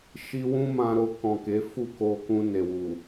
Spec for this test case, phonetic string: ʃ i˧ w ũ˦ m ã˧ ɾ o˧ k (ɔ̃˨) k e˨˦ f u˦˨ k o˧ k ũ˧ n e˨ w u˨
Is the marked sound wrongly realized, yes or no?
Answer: no